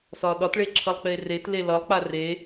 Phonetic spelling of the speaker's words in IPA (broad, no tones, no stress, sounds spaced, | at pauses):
s ɒ ɗ ɒ t ɭ e ǁʰ ʌ lˠ k͡p e r e t l e l ʌ lˠ k͡p a r e